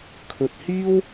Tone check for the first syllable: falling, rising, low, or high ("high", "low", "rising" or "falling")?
low